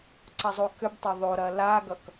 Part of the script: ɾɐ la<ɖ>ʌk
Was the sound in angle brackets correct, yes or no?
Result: no